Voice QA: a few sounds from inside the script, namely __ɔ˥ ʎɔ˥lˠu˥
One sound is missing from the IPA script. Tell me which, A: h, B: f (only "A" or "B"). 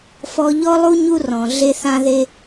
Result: B